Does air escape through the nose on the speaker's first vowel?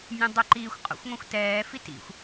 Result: yes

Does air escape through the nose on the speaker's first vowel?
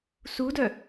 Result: no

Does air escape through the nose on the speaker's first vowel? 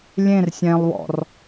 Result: yes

